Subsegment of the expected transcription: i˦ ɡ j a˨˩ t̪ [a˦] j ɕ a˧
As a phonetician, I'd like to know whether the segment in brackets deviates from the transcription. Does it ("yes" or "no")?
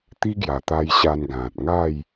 yes